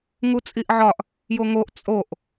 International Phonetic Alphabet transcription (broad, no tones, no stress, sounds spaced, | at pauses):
ŋ u t͡sʼ i ʔ ʕ ɒ ʔ | j o ŋ o ʔ t͡sʼ o ʔ